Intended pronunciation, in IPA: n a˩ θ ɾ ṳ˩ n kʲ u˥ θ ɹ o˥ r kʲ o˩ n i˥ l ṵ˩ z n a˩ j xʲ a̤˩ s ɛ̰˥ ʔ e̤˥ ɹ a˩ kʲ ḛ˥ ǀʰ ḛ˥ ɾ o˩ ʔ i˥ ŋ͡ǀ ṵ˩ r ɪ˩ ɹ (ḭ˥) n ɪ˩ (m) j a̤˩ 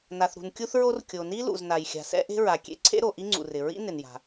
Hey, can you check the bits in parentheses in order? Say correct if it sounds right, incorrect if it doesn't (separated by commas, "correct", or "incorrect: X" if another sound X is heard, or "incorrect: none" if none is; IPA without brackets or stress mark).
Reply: correct, incorrect: n